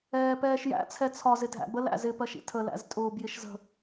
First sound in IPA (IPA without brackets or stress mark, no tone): ɛː